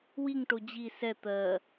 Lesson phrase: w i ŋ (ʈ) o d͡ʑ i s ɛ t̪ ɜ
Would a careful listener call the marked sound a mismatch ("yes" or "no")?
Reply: no